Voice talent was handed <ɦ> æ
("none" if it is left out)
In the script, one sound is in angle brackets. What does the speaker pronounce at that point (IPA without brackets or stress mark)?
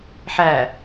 ħ